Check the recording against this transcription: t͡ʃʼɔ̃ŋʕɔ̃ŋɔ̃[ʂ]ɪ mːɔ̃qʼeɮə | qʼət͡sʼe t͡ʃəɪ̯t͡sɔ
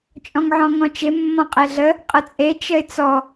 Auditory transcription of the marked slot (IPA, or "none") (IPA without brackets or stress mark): t͡ʃ